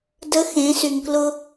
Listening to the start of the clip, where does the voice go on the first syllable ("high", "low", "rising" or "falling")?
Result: rising